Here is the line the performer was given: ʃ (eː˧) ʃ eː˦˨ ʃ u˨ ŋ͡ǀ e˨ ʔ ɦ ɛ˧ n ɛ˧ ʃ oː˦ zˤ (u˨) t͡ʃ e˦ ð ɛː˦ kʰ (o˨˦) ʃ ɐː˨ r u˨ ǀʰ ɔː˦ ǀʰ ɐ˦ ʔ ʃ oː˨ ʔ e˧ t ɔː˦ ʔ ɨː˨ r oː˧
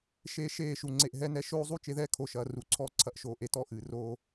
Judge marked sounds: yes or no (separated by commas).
yes, no, yes